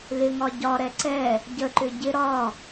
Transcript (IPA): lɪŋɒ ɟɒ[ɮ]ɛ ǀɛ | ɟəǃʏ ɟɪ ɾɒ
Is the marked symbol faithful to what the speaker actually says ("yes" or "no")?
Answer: no